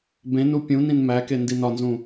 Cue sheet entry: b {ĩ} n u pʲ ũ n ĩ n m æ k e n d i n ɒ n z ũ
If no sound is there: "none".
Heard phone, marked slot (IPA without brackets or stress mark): ẽ